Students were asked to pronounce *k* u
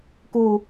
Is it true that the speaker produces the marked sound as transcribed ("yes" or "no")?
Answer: yes